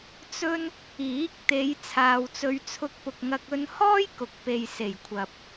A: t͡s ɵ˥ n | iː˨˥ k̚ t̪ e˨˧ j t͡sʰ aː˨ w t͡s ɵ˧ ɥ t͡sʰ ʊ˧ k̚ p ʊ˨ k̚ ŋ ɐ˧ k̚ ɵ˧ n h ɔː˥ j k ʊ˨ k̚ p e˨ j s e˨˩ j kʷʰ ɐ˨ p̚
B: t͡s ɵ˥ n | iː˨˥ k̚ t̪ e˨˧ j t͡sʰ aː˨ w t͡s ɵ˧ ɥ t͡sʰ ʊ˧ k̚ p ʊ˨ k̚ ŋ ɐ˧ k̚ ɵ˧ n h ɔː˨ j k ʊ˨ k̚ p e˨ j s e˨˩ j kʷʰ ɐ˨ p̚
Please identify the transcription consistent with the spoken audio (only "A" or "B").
A